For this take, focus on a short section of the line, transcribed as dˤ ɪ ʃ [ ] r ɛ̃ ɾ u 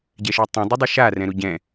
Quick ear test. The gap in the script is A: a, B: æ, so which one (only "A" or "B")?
A